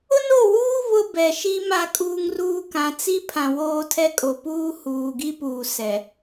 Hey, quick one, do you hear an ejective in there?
yes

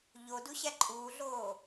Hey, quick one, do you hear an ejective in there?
yes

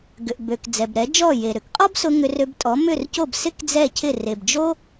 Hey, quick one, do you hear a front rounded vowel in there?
yes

